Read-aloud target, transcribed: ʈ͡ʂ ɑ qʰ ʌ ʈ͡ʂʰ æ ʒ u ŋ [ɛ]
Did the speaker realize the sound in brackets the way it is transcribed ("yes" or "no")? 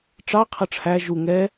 yes